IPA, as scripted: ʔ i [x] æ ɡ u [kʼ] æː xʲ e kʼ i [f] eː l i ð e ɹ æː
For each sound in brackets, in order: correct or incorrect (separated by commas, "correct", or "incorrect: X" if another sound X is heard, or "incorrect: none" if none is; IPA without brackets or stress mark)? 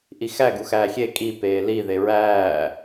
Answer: correct, incorrect: x, incorrect: p